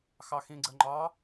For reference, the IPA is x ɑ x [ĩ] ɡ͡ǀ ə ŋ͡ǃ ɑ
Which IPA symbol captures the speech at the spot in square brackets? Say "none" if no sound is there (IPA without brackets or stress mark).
ĩ